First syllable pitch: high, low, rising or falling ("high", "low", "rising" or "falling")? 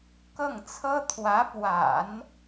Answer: falling